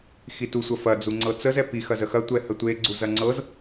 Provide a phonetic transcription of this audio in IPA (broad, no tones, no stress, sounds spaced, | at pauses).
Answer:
x i t u sʷ ɐ f ɐ d͡z u ŋ͡ǀ ɤ t͡s ə z ɛ p i x ɐ z ə x ɐ tʷ ɛ h ə tʷ e ɡ͡ǀ u z ɐ ŋ͡ǀ ɤ z